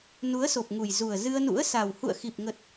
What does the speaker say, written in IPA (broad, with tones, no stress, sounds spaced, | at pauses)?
n u˨˦ ə̯ s o˨˩ p̚ ŋ u˨˩ j z u˨˩ ə̯ z ɨ˧ ə̯ n ṵ˧˥ ə̯ s a˨˩ w h ṵ˧˨ ə̯ x i˨˩ p̚ ŋ ə˨˩ t̚